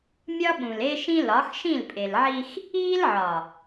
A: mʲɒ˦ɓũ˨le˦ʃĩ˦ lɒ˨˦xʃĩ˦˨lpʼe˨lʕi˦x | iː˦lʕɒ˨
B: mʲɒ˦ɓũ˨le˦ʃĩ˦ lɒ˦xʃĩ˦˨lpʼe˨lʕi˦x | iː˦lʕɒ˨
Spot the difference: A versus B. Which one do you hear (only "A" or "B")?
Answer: A